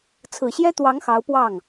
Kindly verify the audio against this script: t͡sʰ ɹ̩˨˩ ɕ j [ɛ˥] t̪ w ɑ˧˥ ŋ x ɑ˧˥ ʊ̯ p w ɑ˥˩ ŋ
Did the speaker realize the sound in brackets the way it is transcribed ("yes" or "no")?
yes